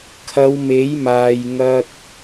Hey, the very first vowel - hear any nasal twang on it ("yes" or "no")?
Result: no